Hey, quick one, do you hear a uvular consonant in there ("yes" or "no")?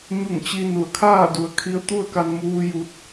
no